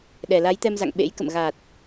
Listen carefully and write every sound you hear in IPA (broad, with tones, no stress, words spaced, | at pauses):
ɗɛ˨˩la˨˦jt̪ɛ˧mza̰˧˨ŋ ɓḛ˧˥j kə̰˧˨mɣaː˨˩t̚